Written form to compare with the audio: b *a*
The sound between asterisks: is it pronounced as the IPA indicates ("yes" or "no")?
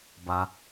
yes